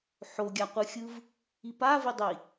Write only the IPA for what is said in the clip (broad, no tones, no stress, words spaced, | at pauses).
ħoɡʲaqʷɯxʲɯv | ipavidˤi